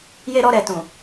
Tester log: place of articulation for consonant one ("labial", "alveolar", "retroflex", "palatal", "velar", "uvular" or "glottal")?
palatal